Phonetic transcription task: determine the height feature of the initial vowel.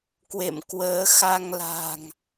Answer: mid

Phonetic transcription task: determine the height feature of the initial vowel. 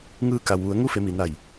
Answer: high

